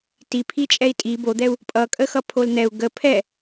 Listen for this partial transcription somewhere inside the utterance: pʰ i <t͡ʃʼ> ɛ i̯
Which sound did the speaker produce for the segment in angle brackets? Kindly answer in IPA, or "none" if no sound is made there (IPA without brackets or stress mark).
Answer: t͡ʃʼ